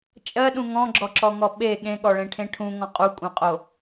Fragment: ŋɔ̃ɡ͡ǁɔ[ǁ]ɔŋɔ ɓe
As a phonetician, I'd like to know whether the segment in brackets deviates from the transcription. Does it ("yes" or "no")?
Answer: no